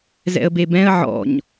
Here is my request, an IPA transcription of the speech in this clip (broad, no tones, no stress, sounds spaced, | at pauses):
z ɛ̰ ə̯ b e b ɛ̃ ə̯ ʕ ɔ̰ ɲ